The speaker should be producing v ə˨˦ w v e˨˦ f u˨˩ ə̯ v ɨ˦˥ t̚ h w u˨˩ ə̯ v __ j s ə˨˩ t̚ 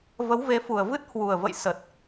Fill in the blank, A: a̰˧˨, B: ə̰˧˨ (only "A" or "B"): B